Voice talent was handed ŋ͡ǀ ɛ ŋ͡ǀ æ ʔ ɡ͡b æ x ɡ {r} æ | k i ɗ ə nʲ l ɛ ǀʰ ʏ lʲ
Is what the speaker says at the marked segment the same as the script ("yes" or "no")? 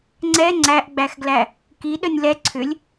no